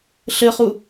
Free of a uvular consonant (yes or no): no